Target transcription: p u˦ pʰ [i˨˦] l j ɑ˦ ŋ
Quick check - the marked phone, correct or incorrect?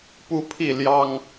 incorrect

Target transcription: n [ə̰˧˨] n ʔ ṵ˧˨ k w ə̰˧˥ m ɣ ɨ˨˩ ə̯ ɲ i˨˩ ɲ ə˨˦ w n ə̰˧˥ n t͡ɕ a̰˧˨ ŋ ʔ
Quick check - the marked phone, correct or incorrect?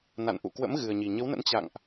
incorrect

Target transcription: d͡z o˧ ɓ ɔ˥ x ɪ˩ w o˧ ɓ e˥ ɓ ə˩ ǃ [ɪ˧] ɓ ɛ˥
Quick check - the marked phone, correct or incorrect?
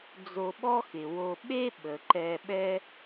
incorrect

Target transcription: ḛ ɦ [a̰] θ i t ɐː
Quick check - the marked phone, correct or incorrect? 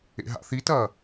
correct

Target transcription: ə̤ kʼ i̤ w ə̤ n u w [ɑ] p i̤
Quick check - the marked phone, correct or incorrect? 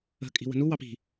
correct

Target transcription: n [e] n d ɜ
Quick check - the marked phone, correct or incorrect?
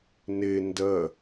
correct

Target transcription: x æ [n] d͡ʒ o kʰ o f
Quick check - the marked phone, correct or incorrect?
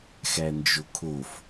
correct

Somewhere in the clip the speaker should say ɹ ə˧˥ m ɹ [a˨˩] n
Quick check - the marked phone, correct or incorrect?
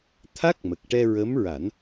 incorrect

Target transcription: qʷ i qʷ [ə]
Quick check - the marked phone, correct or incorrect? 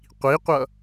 incorrect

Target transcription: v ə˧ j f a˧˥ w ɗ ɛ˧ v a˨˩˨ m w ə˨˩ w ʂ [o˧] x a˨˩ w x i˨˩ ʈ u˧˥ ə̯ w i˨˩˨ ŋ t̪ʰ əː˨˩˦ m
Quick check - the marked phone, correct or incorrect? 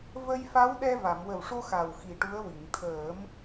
correct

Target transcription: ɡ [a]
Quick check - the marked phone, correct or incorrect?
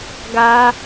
correct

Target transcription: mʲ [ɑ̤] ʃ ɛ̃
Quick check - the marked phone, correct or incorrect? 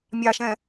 incorrect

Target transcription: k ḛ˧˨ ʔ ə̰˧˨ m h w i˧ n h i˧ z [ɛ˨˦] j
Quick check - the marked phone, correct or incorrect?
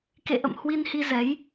correct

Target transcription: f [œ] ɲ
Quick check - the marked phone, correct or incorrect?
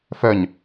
correct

